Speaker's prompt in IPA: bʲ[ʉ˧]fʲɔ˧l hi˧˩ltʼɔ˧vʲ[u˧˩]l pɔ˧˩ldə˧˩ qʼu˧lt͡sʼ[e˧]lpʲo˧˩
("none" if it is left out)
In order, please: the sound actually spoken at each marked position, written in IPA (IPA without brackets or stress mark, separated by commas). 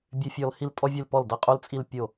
ʉ˧, ʉ˧˩, i˧